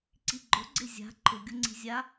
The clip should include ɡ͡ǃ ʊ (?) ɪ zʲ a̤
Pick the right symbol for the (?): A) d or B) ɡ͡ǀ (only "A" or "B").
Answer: B